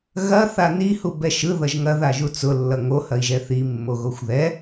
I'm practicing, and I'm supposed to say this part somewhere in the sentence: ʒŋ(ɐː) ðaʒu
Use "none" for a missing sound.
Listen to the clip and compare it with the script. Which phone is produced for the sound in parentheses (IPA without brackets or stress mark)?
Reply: ɐ